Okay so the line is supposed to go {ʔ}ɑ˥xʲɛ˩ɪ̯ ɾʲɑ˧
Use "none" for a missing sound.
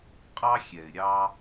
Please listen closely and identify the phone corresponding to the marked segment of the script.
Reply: qʼ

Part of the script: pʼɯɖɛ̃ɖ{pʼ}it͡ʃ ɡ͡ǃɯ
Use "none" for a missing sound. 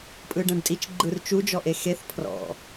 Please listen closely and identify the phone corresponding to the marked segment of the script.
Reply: tʼ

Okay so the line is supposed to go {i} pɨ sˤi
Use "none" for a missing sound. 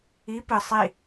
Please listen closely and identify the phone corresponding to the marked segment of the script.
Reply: i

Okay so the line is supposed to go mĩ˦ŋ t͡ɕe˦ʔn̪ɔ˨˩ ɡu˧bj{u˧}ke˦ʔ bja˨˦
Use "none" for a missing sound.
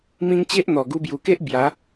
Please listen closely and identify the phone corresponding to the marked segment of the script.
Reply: u˨˩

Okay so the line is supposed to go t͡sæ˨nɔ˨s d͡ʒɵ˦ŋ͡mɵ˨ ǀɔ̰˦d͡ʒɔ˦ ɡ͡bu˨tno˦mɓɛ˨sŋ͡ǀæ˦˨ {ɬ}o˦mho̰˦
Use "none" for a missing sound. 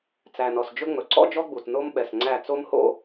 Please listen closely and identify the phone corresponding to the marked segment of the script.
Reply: t͡s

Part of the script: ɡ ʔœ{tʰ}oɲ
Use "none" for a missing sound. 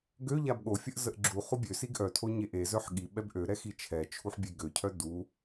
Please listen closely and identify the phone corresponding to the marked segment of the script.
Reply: tʰ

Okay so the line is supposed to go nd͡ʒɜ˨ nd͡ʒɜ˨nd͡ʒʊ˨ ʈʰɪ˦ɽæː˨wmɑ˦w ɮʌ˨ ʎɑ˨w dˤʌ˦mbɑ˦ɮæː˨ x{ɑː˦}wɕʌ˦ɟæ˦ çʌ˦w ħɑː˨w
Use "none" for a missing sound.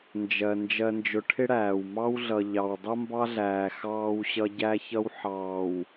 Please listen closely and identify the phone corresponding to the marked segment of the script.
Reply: ɑː˦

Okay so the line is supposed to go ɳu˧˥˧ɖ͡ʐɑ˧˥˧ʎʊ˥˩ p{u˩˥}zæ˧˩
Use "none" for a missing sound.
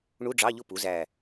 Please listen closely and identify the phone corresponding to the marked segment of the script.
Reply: u˩˥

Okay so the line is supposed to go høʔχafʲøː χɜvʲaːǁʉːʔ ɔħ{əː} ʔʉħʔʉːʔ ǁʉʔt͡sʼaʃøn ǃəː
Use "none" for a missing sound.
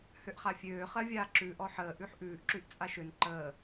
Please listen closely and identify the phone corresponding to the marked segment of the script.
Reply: əː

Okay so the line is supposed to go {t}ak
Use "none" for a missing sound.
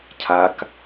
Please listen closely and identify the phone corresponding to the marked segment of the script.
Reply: cʰ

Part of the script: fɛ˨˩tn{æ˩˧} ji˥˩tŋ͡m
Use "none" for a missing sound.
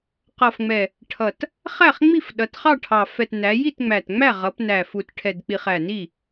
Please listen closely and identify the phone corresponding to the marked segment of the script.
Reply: æ˩˧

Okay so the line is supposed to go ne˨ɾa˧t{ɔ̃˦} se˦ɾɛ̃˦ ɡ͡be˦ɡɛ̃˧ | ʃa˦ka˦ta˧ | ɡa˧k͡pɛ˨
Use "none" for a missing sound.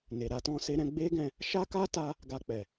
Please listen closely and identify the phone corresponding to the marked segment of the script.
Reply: ɔ̃˦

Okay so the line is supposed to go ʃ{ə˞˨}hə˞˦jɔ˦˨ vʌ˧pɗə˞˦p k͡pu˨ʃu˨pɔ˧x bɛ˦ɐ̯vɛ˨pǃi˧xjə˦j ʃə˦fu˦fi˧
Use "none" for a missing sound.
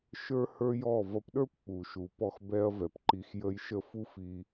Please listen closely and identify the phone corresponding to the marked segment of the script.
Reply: ə˞˦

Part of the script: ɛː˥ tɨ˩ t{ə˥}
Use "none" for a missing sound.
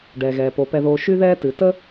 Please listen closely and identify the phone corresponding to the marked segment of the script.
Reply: ə˥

